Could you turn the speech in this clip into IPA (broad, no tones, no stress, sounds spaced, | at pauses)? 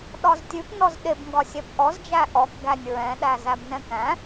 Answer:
ɗ ɒ z tʲ ʉ p n ɔ z ɗ e b ŋ ɡ ɒ sʲ ɛ p ʔ ɔ z d͡ʒ æ ʔ ɔ k ɡ æ nʲ ɹ ɛ̃ ɗ æ z æ b n ɛ̃ k æ̃